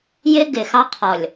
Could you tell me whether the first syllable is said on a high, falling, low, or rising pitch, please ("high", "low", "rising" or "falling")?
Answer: high